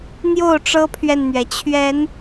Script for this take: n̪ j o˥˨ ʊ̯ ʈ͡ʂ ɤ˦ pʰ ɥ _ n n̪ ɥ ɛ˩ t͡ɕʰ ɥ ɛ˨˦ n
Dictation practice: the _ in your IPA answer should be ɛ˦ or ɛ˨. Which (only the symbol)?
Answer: ɛ˨